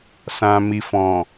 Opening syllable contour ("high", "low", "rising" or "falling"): low